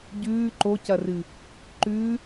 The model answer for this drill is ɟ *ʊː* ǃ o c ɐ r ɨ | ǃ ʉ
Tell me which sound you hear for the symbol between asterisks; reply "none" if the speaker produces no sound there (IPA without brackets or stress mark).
ʉː